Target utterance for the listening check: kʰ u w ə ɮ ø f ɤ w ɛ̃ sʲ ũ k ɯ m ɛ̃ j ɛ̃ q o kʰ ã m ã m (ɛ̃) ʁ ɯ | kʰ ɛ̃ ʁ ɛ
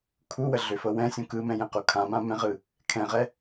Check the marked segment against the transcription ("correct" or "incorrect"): correct